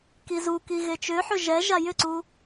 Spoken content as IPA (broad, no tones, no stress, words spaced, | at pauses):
kizuki ɣet͡ʃʏħʏ ʒɛ ʒajʏǀu